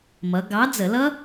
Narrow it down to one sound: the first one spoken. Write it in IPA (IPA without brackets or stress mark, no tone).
m